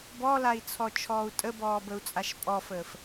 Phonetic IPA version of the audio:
b ɔ l a i̯ t͡sʰ ɔ t͡ʃʰ ɔː u̯ tʼ ə b ɔː b ə u̯ t͡sʼ a ʃ pʼ ɔ f əː f

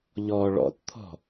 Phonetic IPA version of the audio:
ʎ ɔ ɭ ɔ̰ t t̪ʰ ɔ̤

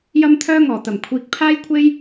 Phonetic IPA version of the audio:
j ɐ˥ m t̪ʰ œː˥ ŋ ɔː˨˩ t̪ ɐ˨˩ m kʷʰ iː˨ k̚ pʰ aː˥ j kʷʰ e˥ j

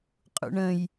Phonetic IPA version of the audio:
qʼ ṵ ɳ ə̃ j

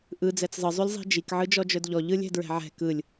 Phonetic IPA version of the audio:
ʔ ɯ d͡z ɛ t͡s zˤ ɯ zˤ y lʲ zˤ i̤ d͡ʒ i k ʕ ɯ d͡ʒ ɔ d͡ʒ œ d ʎ ɔ ʎ ɯ lʲ ɛ̤ d ɹ ɛ̤ ʕ ɛ̤ k ɯ lʲ

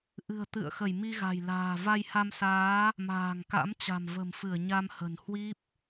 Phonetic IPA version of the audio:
ʔ ɨ̤˨˩ ə̯ t̪ ɨ̰˧˨ ə̯ x ə˧˩ j m i˧ ɣ a̤˨˩ j l a̤ː˨˩ v a˧ j h a˧ m s aː˨˦ | m a̤ː˨˩ ŋ k a̰˧˥ m t͡ɕ a̤˨˩ m v ə̤˨˩ m f ɨ˧˩ ə̯ ɲ a˧ m h ə̤˨˩ n h w i˦˥ p̚

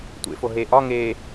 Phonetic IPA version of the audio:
tʷ ḛ f o ɦ e ʔ ɒ ŋ e

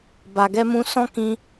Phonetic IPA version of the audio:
b a˨ ɡ ɛ˧ m ũ˧ s ɔ̃˧ k ĩ˧

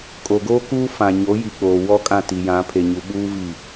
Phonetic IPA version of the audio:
kʼ o˨ ɡ oː˦ k uː˦ f ã˨ ɲ o˨˦ j i˨ k͡p oː˨ w ɔ˦ kʼ ã˦˨ t i˨ j ã˨˦ pʰ e˨ ɲ u˨ ɓ uː˦ v i˦˨

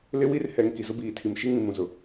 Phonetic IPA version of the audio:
l ɪ˦ w i˦ r h ɛ˨ ŋ k i˨ z ʊ˦ b iː˨ tʰ i˨ m ʃ i˦ ŋ ĩ˨ m ũ˨ z ʊ˨

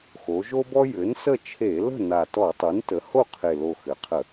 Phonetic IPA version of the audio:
x o˩˧ ʒ o˦ b ɔ˦ j ɘ˩˥ n s ə˥˨ t͡ʃʰ e˧˩˧ l ə̤˥˨ n a˨˩ t ɔ˧˩˧ tˤ u˩˥ n t ə˩˥ h o˥˨ qʰ e˨˩ l o˨˩ x ɘ˩˧ qʰ ə˧˩˧

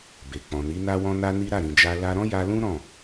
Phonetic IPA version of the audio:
b e˨ k͡p ɔ̃˨ n i˨˦ n a˦ w ɔ̃˦ n a˦ n i˦ ɾ a˦˨ ɾ ĩ˨ d͡ʒ a˧ l a˧ ɾ ɔ̃˦ j a˧ l ũ˦ ɾ ɔ̃˦˨

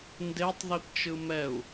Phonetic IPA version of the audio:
n d e tˤ ð i p t͡ʃ ɯ m ɛ u̯

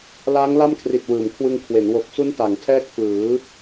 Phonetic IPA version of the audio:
l aː˦˥ ŋ l a˥˩ m kʰ r i˨˩ t̚ w ɯː˩˦ m kʰ w ɯ˧ ŋ kʰ w e˩˦ n w o˨˩ k̚ s u˦˥ n t a˩˦ ŋ tʰ ɛː˥˩ k̚ f ɯː˩˦

